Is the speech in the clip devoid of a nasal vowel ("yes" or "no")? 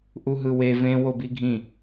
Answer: no